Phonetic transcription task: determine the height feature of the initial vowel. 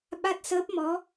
low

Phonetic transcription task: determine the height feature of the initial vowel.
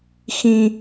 high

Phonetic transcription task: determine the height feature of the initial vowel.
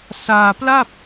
low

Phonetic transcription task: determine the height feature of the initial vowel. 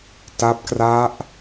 low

